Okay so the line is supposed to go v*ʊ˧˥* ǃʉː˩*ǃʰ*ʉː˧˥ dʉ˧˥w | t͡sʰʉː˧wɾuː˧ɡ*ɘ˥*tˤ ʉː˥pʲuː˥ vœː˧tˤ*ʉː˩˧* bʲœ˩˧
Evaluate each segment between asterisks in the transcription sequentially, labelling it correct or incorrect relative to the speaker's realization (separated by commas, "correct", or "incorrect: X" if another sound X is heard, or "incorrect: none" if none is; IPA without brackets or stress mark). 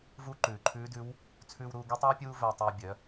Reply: incorrect: u˧˥, correct, incorrect: ɛ˥, incorrect: ʉː˧